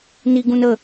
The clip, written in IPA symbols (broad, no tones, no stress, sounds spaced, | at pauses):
n i ɡ ũ n ə